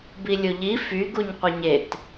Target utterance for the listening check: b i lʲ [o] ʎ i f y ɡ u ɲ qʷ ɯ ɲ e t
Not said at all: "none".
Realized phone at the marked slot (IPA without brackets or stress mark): o